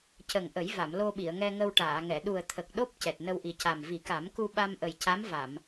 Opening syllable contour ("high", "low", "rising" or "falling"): low